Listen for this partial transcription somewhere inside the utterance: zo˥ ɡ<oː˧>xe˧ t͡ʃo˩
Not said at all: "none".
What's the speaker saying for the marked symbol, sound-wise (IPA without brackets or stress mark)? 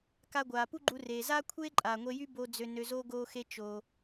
oː˧